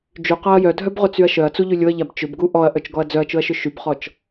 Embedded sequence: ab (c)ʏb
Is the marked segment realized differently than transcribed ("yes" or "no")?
yes